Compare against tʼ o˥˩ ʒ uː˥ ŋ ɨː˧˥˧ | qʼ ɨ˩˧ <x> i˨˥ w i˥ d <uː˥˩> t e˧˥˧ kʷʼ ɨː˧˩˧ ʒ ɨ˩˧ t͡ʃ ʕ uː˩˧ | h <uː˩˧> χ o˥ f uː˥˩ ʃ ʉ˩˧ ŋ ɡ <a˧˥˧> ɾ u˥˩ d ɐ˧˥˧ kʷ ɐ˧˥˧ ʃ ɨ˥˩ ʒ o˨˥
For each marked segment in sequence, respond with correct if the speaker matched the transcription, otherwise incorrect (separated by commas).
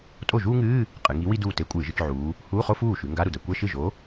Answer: incorrect, correct, incorrect, correct